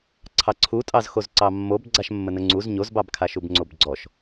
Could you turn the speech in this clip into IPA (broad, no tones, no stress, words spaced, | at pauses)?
ǀʰɑǀʰutʼɑz xozǀɑmːob ɡ͡ǀaʃmːənəŋ͡ǀuz ɲozbɑbkʰaʃub ŋ͡ǀobɡ͡ǀɔʃ